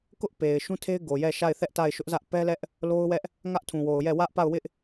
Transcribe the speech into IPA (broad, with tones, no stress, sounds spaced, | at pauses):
k ʊ˦ ʔ p e˨ ɪ̯ ʃ ũ˦ tʰ e˦ ɪ̯ ɡ o˨ j ɛ˦˨ ʃ a˦˨ ɪ̯ θ ɛ˦ ʔ t a˦˨ ɪ̯ ʃ ʊ˦ ʔ z ä˦ ʔ p ɛ˦ l ɛ˦ ʔ | l o˦ ʊ̯ w ɛ˦ ʔ | ŋ ä˦ ʔ tʰ ũ˨ w o˨ ʊ̯ j ɛ˦˨ w ä˦ ʔ p a˦˨ ʊ̯ w ɪ˦ ʔ